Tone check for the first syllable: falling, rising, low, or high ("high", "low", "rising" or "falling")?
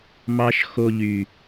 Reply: high